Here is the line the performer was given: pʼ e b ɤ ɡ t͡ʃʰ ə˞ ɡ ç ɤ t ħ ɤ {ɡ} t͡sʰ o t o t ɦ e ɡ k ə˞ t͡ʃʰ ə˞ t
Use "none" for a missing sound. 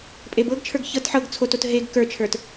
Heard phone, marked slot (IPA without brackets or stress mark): ɡ